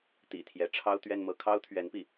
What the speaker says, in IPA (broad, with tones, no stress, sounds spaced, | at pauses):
t̪ ḭ˨˩ t̪ʰ j ɛ˧˥ ʈ͡ʂʰ ɑ˥ ʊ̯ t̪ ɥ ɛ˥˧ n m ɤ˥˩ kʰ ɑ˥ ʊ̯ t̪ʰ ɥ ɛ˧˥ n p i˥˩